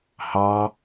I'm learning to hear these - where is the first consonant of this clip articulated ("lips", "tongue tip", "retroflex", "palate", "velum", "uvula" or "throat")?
throat